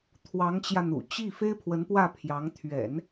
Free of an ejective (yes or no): yes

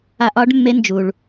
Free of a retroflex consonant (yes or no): no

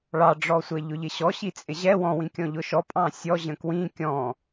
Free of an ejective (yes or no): no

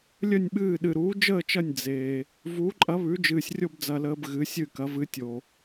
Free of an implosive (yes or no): no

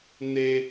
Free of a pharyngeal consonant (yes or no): yes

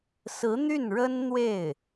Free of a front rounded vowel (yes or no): no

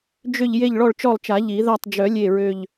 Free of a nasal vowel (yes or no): yes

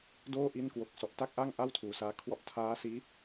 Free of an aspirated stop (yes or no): no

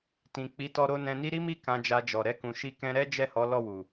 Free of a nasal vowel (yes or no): no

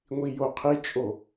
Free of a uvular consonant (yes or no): no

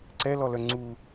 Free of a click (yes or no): no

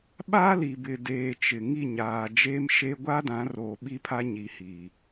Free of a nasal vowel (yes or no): no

